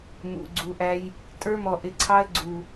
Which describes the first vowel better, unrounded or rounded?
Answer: rounded